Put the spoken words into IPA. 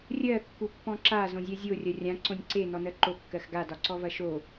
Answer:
rʲ ɜ kː u pː ɔ̃ ǁ a z õ zʲ ɜ zʲ o rʲ ɐ rʲ ã ǀ õ nʲ ǀ e n ɔ n ɜ ǃ o kː ɜ x ɡ a d ɒ ǀ ɔ v ɐ ʃ o

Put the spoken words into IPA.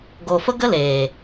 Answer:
ɡ o˨ f ə˦ ɡ ə˦ l eː˨

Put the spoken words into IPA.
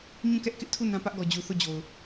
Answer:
ɲ ũ˦˨ k ɛ˦ ʔ k ɪ˦ ʔ tʰ u˦˨ n ã˦ p ä˦ ʔ ɡ ɔ˨ d͡ʑ u˨ θ o˦˨ d͡ʑ o˨ ʊ̯

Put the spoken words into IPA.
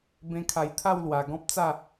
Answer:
b ẽ˧ kʰ a˨˩ j t̪ʰ a˥˧ w l w a˨˩ ɡ ɔ̃˦ p̚ t͡s a˥˧

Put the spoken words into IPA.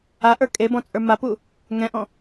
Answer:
a ʔ ə˞ kʼ e b ɔ̃ t͡sʼ ə˞ m a p u | ŋ ɛ̃ ʔ ɔ̃

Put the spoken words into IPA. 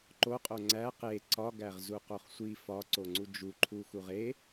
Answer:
ǃ o qʼ o ŋ͡ǀ æ q e ǀ ɒ ɡ æ ʁ z u q o χ sʷ i f ɒ ǀ o ŋ͡ǀ u d͡ʒ u ǃʰ u x u ʁ e

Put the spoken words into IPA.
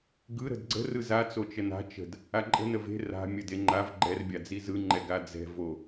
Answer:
ɡ ɯ ɾ ə̤ d ɡ͡ǀ ə̤ r ɯ z a t͡s o t͡ʃ ə n a̤ t͡ʃ ə̤ d | a ǃʼ ə̤ n ə v e̤ r a̤ mʲ ə d e ŋ͡ǃ a v ɡ͡ǃ ɛ r bʲ a d͡z i z ɯ ŋ͡ǃ ɛ ɡ a d͡z ɛ̤ v o

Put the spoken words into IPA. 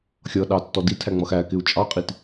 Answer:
xʲ ʌ ɗ ɑ tː ɔ d i tʰ æ ŋ͡m ʌ x æ k ɪ u̯ t͡ʃʼ ɑ qʼ i t

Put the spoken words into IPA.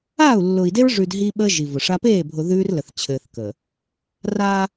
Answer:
aː˦˨ u̯ lː ʊː˨ i̯ d e˦ ɹ ʐ ʉː˨ d ɦ i˦ ɓ əː˦ ʒ i˨ v ʊ˨ ʂ a˦ p eː˦˨ bʱ ʊ˨ ð ʉː˦ r l ə˨ θ t͡ɕʰ ɘː˨ θ k əː˨ | r aː˦

